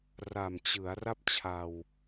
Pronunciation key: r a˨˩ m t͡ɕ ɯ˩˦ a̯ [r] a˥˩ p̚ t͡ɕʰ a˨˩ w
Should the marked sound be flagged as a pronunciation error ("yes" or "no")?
no